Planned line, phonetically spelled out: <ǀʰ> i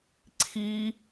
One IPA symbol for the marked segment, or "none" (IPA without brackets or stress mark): ǀʰ